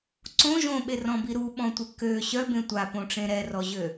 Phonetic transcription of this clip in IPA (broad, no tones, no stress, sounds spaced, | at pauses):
ǀ õ ʒ õ ɓ e r ɔ̃ b i ɾ u ɓ ɔ̃ tʷ ɛ k ø ɕ œ b ẽ tʷ a p õ ʈ͡ʂ ẽ ɾ ɛ r ɔ ʑ ø